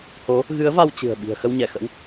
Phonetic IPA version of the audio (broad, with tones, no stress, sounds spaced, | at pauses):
h o˨˦ | ɣ ɨ˨˦ ə̯ v a˧ w t͡ɕ ɨ̤˨˩ ə̯ ɓ i̤˨˩ ə̯ x ə˧ w ɲ ɛ˧˩ x ə̰˧˥ w